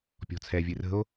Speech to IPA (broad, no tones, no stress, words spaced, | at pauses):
pʲɔ̤t͡sʰɛ vʲɨrə̤o̯